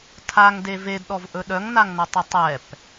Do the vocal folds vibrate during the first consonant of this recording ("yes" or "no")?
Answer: no